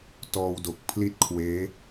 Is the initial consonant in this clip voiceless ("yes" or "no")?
yes